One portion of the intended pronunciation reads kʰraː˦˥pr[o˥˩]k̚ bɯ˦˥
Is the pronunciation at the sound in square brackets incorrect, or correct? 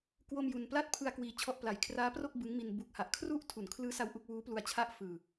correct